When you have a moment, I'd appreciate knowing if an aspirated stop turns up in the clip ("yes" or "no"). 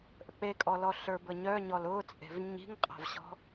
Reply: no